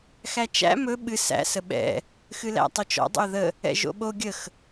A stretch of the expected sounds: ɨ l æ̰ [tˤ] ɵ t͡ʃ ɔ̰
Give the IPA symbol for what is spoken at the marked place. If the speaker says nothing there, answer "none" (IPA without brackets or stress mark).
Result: tˤ